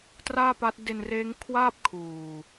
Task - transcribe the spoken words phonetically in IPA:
t r aː˥˩ p a˦˥ t̚ d e˧ n r eː˦˥ ŋ kʰ w aː˥˩ p̚ kʰ uː˨˩

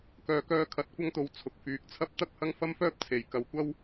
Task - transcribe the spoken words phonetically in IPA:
k œː˨ k œː˧ kʰ ɐ˨˥ t̚ kʷ ɐ˥ ŋ t̪ o˧ w t͡sʰ ʊ˨ k̚ f yː˨˥ k̚ t͡sʰ ɐ˥ p̚ t̪ ɐ˥ k̚ h ɐ˥ ŋ f ɐ˥ m f œː˥ p̚ t͡sʰ e˨˧ j k ɐ˧ w kʷ ɐ˥ w

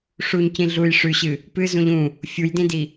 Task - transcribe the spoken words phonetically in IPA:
ʂ u ɲ c ĩ ɮ u j ʂ ʉ ɕ ɨ | p ɨ z ũ ʎ ũ | fʲ u j d ĩ d i

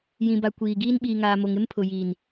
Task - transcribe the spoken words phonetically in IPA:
j ĩ˨ b a˨ kʷ iː˨ ɡ iː˦ n ɓ iː˨ ŋ aː˨ m o˨ ŋ ɪ˦ m pʰ ʊ˨ j iː˨ n

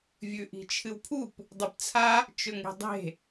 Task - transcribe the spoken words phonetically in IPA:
vʲ ʉ ʔ i̤ t͡ʃʰ ɨ w pʰ u p | dˤ ɨ p t͡sʰ a | t͡ʃ ɵ ŋ e̤ dˤ e̤

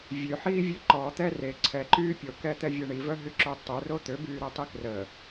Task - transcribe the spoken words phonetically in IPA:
vʲ ø ħ iː vʲ ø ǃ ɔ t̪ ɛ r e ǀʰ ɛ ǃ yː pʲ o k ɛ t̪ ɛ vʲ ɛ ɳ i v œ ɦ y ǁ o tˤ u r o t̪ ø b yː ɾ ɛ tˤ i k r ə

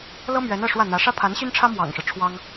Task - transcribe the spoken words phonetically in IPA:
l ɤ˥ m ɥ ɛ˧˥ n ɤ˥˧ ʂ w ä˥˩ n̪ ä˧˥ ʂ ä˥ pʰ a˧˥ n ɕ y˥ n ʈ͡ʂʰ ä˥ m w ɑ̰˨˩ ŋ ʂ ɻ̩˦ ʈ͡ʂʰ w ɑ˥ ŋ

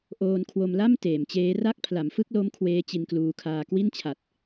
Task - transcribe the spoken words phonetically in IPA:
ʔ oː˧ n kʰ w o˧ m l a˥˩ m t eː˩˦ m t͡ɕ eː˦˥ r a˥˩ k̚ pʰ l a˩˦ m f ɯ˥˩ k̚ l o˦˥ m kʰ w eː˦˥ t͡ɕ i˧ n k l uː˧ kʰ aː˧ k w i˥˩ n t͡ɕʰ a˨˩ t̚

